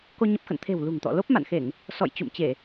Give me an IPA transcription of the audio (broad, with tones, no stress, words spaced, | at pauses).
ko˧ ɲə˦˥p̚xə̰˧˨n t̪ʰe̤˨˩w lṳ˨˩ŋt̪ɔ̰˧˨lo˦˥p̚ ma̰˧˨nxe˧˩˨ŋ | sɔ̰˧˨j t͡ɕṵ˧˨mt͡ɕe˧˩˨